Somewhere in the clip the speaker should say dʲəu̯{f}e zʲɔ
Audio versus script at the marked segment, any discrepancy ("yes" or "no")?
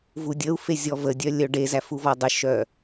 no